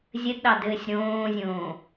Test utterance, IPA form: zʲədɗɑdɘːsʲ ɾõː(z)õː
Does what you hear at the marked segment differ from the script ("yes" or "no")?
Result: yes